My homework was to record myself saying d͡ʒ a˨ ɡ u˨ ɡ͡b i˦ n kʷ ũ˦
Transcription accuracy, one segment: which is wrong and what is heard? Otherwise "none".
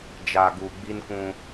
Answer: none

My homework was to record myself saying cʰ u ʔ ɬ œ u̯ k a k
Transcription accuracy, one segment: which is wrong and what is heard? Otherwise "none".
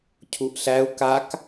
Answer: œ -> æ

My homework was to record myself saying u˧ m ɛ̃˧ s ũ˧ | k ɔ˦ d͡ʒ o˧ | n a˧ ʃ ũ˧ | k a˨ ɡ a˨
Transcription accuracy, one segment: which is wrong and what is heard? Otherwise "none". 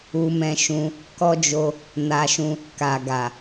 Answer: s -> ʃ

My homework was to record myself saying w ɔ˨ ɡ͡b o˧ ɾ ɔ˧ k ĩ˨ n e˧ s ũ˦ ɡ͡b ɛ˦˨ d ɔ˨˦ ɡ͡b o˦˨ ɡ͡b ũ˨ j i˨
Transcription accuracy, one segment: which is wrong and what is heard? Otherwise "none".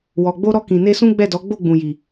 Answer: none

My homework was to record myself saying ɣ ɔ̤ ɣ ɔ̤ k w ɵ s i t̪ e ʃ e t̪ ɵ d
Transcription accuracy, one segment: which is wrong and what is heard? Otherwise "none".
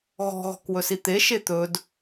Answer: none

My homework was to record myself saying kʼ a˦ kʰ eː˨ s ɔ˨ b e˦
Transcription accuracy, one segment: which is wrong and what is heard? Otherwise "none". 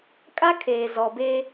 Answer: s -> z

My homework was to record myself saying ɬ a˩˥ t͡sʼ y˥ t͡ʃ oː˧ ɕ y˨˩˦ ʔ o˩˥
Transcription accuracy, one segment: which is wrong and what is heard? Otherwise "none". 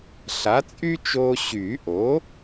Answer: none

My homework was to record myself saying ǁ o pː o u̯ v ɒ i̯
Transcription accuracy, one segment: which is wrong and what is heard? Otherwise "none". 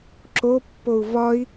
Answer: none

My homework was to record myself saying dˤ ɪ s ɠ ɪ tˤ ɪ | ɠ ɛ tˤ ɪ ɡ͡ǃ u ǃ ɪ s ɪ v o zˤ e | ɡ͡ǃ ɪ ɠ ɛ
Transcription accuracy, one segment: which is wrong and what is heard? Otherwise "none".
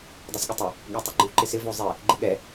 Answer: none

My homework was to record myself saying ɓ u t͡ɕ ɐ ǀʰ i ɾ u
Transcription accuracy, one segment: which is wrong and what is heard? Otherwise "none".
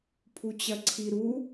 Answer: ɓ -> pʰ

